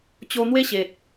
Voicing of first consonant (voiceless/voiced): voiceless